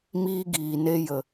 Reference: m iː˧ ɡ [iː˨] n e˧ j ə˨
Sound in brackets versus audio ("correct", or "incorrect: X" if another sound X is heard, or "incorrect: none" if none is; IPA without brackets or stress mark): correct